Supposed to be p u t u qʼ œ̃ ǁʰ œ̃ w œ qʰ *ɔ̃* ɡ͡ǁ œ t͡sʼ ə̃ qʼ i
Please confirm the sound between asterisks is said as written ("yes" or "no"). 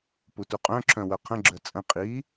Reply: no